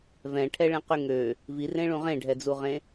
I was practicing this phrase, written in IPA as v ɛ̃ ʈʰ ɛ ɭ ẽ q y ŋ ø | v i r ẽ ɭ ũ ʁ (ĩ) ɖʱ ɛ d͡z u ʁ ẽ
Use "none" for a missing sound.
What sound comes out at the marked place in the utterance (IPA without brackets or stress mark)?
ẽ